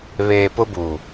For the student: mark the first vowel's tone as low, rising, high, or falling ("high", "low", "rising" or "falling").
low